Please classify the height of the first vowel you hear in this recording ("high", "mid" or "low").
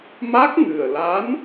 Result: low